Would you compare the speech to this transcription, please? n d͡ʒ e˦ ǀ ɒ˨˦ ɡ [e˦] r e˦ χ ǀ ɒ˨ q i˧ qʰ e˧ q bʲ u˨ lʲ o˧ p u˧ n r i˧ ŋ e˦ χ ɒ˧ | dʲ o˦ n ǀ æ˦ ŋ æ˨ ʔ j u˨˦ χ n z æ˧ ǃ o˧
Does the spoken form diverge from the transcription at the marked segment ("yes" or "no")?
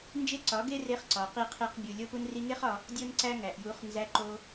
no